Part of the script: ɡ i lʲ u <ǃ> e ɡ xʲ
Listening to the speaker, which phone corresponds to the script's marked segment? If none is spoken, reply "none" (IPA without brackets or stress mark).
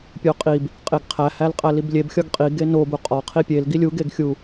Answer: ɡ